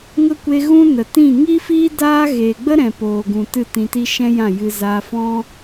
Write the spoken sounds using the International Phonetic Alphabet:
ŋ ə˦ kʷ e˧ ɣ ũ˦ n ə˨ t ĩ˦˨ ŋ i˦ f i˦ d aː˦ ɣ eː˨ ɡ͡b ə˦ ɾ ɛ̃˨ p oː˨ ɡ ũ˨ t ɨ˦˨ t ĩ˧ t i˦ ʃ ɛ̃˦ j ã˦˨ j ɨ˧ z aː˧ f ɔ̃˦

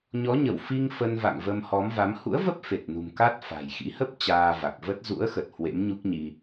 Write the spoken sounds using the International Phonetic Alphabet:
ɲ ɔ˨˦ ɲ ə˧˩ w f i˧ ŋ f ə˧ n v a̰˧˨ ŋ v ə˧ m h ɔ˨˦ m v a˨˦ m h ṵ˧˥ ə̯ v ə˦˥ p̚ f e˨˩ t̚ n ṳ˨˩ m k aː˦˥ t̚ f a̤˨˩ j x ḭ˧˥ h ə˦˥ p̚ t͡ɕ aː˧ v a˨˩ k̚ v ə˦˥ t̚ z ṵ˧˥ ə̯ x ə˨˩ t̚ h w ḛ˧˥ m ɲ u˦˥ k̚ ɲ i˧

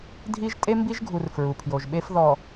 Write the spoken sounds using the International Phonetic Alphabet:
dʱ i˦ ʒ tʼ e˦ m b i˦ ʒ ɡʱ u˨ r f ɹ u˨ pʰ j o˨ ʒ ɓ e˦ f ð ɔ˨

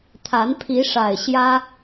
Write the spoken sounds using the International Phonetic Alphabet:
t̪ʰ a˨˦ n pʰ i˨˦ ʂ a˨˩ ɪ̯ ɕ j ä˦

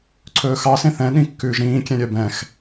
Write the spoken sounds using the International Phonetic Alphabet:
ǀʰ ɵː x ɑ s ẽ θ ɛ̃ ɗ ĩ kː ʉː ʒ ɾ ĩː kʲ ɛ̃ ɾʲ œ b ɛ̃ x

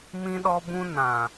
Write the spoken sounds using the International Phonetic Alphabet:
m ĩ˦ ɗ ɔ˦ b ũ˦ n ã˨

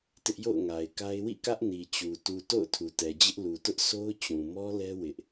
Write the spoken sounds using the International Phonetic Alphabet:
t ɪ˦ ʔ j o̰˦˨ ʊ̯ ŋ a˨ ɪ̯ k a˦ ɪ̯ w ḭ˦˨ k ä˦ ʔ n i˨ t͡ɕ u˨ t u˨ t o̰˦˨ ʊ̯ tʰ u˨ t ɛ˨ d͡ʑ ɪ˦ ʔ l u˨ t ʊ˦ ʔ sʰ o˦ ʊ̯ t͡ɕ ũ˨ m ɔ˦ l ɛ˦ w ɪ˦ ʔ

